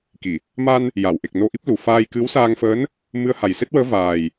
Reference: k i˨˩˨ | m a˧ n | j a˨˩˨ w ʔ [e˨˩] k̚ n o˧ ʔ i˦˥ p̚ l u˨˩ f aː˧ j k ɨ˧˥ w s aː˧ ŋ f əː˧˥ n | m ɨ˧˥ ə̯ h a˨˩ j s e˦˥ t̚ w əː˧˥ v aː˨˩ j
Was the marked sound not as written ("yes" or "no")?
no